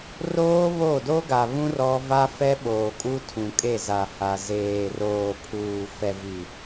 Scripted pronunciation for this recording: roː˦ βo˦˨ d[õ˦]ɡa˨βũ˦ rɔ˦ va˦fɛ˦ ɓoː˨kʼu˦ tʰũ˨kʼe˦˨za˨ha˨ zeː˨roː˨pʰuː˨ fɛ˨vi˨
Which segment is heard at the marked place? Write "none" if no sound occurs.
o˦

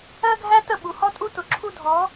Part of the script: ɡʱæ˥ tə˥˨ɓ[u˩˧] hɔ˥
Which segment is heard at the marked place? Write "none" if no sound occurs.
u˩˧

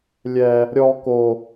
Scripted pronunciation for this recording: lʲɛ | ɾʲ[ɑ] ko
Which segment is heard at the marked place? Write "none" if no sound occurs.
ɔ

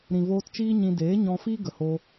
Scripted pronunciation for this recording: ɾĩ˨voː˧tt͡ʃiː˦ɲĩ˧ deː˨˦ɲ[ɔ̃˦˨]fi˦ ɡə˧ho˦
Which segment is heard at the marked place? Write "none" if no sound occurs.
ɔ̃˧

